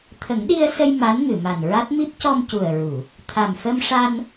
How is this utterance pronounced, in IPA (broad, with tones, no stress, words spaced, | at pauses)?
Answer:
t̪ʰə˨˩˦ŋɗi˧ə̯sə˧j ma˧˥nŋɨ˨˩˨ma˨˩nɹa˦˥t̚ mi˦˥p̚ cɔ˧mcu˨˩ə̯ɹu˨˩˨ | t̪ʰa˨˩mfə˧mʂa˧n